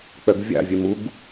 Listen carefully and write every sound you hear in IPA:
k͡p œ ɡ vʲ ɑ̰ vʲ œ m u ɡ

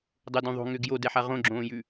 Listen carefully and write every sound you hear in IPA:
dˤ ʊ d ũ ðˤ o̤ ŋ ʏː ɡ j o d ɛ ħ a ʁ õ ɡ͡ǁ õː j ʉ

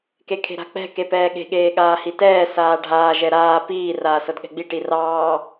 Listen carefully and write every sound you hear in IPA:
k e kʰ e̤ ɾ a̤ k͡p ɛ̤ k e p ɛː ɠ e̤ ɠ eː ɠ aː h i t ɛː s aː ɖʱ aː ʒ ɛ ɾ aː p iː r aː s ɤ d ɠ ɛ̤ ɡ͡b i ʈ i r ɑː

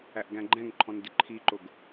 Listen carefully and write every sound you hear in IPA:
æ ʔ ɡ æ̃ ɡ͡ǃ ɛ̃ ŋ ǃʰ ɔ̃ n d ɪ ǃʰ i ǃ ʊ ɡ

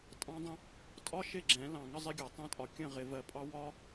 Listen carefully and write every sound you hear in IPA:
tʼ ɑ̃˦ dˤ ə̃˦ | tʼ ɒ˦ ʃ ɪ˦˨ ɡ͡ǁ ɛ̃˨˦ l ɑ̃˨ ŋ ə˦ zˤ ɪ˦ ɡʲ ɒ˨ tˤ ɛ̃˦ tʼ ɒ˨ kʲ ə̃˦˨ ʁ ɪ˨ v ɜ˨ pʼ ɑ˦ w ɒ˦

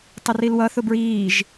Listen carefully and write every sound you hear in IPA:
tˤ ɪ r i l w ʌ θ ʊ b ɹ iː ʒ

